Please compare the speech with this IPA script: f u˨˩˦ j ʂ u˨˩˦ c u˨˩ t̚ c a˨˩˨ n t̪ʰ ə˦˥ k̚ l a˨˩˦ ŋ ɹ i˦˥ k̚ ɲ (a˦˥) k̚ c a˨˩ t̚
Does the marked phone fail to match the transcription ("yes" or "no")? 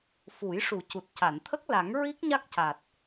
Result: no